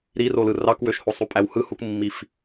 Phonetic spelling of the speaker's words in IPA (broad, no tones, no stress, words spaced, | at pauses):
ɾirolɯ rɑkwøʃhosˤu pʼæwhɯhukmːif